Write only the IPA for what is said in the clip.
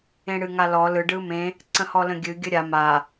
ẽɽɨŋalɔ lɯ ɖɯmẽ | ǀə̃hɔlə̃ɡʲɨ ɡʲəɾʲa ma

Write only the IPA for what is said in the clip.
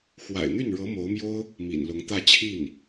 xwa̰˨˩ɪ̯n̪y˥˩nɻɤ˧˥ mo˧˥ʊ̯mjo˥ʊ̯ | mḭ˨˩nlʊ˧˥ŋ t̪ä˥˧t͡ɕʰi˥˩n

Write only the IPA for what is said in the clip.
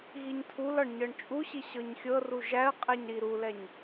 ɣiɲtʰulɒɳ ɲɤɳt͡ʃʼuɕi ɕɤɲxʲɤru ʒæə̯ qʼɛɲɾiɾulɛɲ

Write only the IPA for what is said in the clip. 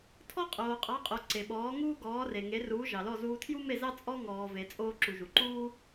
tʰɔ˥qʼoː˩qʼɑ˩˥qʼo˩ ǀe˩ɓɔː˩˥ŋuː˥ ɡɔː˩˥re˩ ŋe˩˥ruː˩˥ ʒɑ˩lɔ˥˩zuː˧ tʰju˥me˥˩zɑ˥ t͡sʼɔ˥ ŋɔː˩ve˩ t͡sʼoː˧ǁu˩ ʒu˩ǃuː˥

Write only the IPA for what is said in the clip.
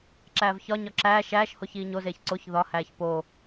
ǁæːvçɒɲɒ ǁæːʃ æːʃ hoçiːɲozeːç ǀoç ðɒhæːç po

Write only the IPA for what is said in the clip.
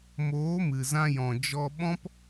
moː˨˦mɨ˨ zã˧jɔ̃˨ d͡ʒɔ˧ɓɔ̃˦p

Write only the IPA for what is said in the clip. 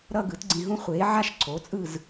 ɾʌ˥˧ɡɯ˨˥tɡ͡ǀĩ˧ɦũ˥ χʷeː˨˥ʕa˥ʃ ǀʰo˨˥t͡sʼɯ˥˧z

